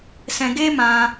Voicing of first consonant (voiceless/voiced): voiceless